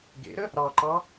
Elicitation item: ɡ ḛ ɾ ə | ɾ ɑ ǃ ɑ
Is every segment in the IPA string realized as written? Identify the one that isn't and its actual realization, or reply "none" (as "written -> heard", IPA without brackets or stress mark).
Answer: none